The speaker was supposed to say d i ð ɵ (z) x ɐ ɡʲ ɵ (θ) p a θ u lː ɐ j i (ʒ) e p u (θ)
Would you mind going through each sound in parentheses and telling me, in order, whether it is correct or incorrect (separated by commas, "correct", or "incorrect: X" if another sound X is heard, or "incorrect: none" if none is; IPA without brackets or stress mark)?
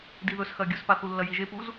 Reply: incorrect: s, incorrect: s, correct, incorrect: z